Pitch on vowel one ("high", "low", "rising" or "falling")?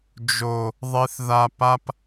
low